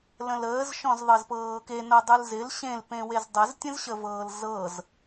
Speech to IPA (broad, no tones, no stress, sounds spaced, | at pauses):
l ə̃ l əː z ʃ ɔ̃ z ðˤ ɤ z p ɤː k e n ɤ dˤ ɯ l z ɪ l ɕ ẽ l p ẽ w e z dˤ ə z tʲ ə̃ z ɕ ə v ɤː l z ɤ z